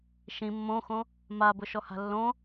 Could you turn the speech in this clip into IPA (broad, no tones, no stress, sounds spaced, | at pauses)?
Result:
ʃ ĩ mː õ x õ | m a b ʊ ʃ ɔ h a̤ lː õ